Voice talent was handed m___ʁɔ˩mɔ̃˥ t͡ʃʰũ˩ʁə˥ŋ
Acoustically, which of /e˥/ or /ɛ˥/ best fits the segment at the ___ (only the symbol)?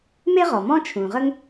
e˥